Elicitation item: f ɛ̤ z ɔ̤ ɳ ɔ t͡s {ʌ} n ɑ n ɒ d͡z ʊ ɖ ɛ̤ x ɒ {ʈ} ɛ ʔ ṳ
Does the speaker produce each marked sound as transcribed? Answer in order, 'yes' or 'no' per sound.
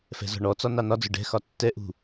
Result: no, no

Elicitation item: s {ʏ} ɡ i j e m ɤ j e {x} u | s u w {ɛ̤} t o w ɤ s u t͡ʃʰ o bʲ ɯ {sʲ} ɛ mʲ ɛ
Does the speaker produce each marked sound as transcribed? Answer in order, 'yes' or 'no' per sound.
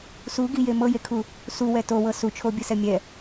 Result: no, no, no, no

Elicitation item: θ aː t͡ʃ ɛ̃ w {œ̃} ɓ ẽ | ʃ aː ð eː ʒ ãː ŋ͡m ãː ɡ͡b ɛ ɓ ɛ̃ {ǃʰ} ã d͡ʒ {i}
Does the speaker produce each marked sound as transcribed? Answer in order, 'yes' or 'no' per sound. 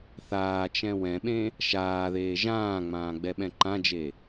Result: no, no, no

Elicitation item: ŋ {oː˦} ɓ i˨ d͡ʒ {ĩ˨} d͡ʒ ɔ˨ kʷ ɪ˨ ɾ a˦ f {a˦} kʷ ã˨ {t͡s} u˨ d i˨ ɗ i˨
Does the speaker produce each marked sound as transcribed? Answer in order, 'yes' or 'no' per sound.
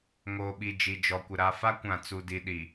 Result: no, no, yes, yes

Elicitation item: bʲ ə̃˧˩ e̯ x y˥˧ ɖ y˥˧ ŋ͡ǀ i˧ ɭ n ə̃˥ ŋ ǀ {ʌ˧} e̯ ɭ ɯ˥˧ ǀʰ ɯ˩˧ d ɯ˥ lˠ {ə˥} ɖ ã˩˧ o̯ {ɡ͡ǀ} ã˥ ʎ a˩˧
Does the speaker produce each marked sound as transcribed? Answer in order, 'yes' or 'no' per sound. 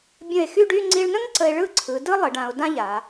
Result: no, no, no

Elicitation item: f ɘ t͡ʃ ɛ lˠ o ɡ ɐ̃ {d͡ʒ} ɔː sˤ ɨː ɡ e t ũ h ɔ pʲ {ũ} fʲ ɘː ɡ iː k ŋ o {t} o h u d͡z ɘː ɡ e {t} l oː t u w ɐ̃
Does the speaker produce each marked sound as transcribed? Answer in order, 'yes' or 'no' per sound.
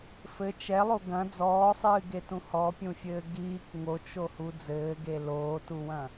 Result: no, yes, no, no

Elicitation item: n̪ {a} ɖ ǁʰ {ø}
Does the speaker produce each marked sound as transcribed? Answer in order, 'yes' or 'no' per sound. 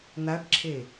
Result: yes, no

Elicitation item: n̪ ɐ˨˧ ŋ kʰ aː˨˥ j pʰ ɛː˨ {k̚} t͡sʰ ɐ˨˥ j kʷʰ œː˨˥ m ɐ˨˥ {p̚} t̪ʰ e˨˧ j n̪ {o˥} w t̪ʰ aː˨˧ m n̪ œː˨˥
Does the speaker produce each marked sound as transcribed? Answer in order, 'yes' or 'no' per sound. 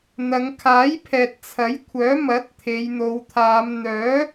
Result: no, no, no

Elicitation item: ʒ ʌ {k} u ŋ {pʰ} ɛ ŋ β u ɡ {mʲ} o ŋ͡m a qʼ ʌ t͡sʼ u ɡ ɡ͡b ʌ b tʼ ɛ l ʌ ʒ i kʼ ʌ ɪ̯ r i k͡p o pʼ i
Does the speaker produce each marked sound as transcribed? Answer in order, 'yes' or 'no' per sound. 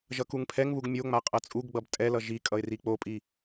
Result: yes, yes, yes

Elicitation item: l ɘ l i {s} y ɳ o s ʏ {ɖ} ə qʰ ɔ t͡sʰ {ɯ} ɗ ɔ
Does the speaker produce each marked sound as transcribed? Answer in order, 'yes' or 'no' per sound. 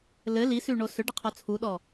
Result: yes, yes, no

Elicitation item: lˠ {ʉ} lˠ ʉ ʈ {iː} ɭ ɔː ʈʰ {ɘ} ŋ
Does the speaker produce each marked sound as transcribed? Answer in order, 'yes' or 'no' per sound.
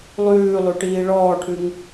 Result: no, yes, no

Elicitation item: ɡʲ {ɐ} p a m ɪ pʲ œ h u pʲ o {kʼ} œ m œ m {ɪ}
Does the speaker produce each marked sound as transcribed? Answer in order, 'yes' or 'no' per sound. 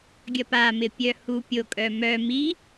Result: yes, yes, no

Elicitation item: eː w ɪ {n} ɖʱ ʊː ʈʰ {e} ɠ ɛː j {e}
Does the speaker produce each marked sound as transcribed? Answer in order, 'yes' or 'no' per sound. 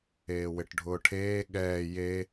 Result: no, no, yes

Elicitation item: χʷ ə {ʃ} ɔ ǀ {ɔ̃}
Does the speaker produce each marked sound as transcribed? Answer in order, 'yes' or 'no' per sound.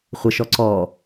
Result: yes, no

